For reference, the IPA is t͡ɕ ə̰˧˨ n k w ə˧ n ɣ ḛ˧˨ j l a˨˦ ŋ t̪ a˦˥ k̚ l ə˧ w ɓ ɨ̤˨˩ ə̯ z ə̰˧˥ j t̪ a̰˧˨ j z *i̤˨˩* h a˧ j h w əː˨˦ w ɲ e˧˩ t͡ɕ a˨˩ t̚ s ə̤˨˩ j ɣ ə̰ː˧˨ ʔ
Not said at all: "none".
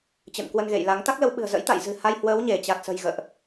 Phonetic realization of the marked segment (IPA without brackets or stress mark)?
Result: ɨ̤˨˩